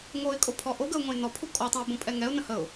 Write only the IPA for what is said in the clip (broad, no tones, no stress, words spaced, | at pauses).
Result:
ŋoɪ̯kʼopʰɔ ʔoɡəʊ̯ŋõɪ̯ nɔpʰu kʼɔtˤə̃ʊ̯bõpʼɛ ŋɛʊ̯nə̃ həʊ̯